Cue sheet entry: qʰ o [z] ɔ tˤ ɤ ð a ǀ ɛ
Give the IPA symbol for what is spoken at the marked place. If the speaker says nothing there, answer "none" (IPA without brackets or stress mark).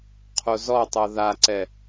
z